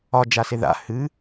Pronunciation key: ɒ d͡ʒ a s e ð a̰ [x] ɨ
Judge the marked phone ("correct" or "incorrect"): incorrect